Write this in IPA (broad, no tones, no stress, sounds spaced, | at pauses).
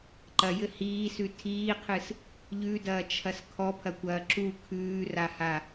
ǃ ɐ j ɘ h iː s ʉ tʰ iː qʰ ɨ s | ʎ ʉ d ɐː t͡ʃʰ ɐ s kʰ ɔ pʰ ɐ kʷ ɐː ǁ u kʰ ʉː r a h a